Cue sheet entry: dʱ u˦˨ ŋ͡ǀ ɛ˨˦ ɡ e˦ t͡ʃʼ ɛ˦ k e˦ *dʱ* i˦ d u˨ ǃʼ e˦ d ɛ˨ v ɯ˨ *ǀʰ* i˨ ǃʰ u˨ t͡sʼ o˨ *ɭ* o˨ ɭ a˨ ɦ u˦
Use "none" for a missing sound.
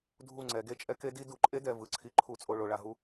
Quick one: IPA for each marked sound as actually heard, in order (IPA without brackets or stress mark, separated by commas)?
d, ǀʰ, ɭ